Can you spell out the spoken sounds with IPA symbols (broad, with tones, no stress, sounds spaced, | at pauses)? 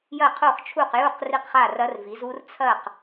j ɐ˥˩ qʰ o˥˩ χ t͡ʃʰ u˥˩ q j u˥˩ q r i˥˩ q χ a˥˩ r ɐ˦˥ r v i˩˥ z u˦˥ r t͡sʰ ɐ˥˩ q